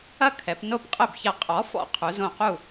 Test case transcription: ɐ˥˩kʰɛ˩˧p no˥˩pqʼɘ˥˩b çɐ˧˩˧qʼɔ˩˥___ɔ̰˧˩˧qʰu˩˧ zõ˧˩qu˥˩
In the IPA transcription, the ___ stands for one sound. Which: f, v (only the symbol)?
f